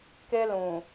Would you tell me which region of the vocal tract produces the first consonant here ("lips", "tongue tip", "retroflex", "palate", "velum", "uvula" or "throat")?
velum